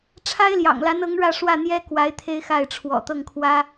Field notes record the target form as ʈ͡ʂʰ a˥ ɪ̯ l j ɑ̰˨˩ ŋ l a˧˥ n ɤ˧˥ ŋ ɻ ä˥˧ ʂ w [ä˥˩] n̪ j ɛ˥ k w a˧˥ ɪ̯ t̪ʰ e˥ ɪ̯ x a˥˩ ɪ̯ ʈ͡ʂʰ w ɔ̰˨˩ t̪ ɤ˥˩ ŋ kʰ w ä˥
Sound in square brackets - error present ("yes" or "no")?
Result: no